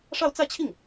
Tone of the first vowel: falling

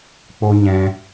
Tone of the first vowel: high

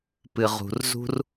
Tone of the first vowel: low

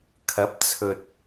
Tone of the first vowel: rising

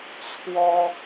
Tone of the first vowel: high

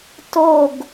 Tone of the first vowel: falling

